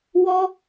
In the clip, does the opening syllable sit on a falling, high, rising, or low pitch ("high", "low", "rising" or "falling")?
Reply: high